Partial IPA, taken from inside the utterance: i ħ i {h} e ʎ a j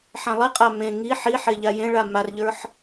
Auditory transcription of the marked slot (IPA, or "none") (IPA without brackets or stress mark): ħ